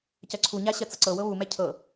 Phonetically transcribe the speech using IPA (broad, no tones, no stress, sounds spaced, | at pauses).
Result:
c ɜ ǀʰ u ɲ a ɕ ɜ t͡s ɤ ǀ ɤ w ɤ β u m ɛ cʰ ɤ